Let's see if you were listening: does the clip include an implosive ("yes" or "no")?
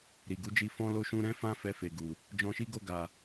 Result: no